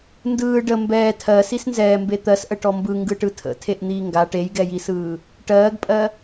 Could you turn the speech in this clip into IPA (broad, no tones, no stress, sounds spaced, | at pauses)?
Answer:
n d ɯː ɖ ə m b ɛː tʰ ɜ s i s n z ɛː m b e t̪ ɜ s ʔ ə ʈ ɔ m b ɯ ŋ ɡ ɯ ʈ ɯ tʰ ə̰ tʰ e ʔ n̪ iː ŋ ɡ a ʈ e j ɡ ɛ j i s ɯː | ʈ ɜː ɡ pʼ ɜ